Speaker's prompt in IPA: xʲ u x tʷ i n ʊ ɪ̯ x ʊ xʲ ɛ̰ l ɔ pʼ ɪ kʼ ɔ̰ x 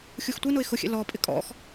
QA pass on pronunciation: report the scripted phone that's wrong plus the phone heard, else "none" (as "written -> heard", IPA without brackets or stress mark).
none